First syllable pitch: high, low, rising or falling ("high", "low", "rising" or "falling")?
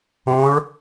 rising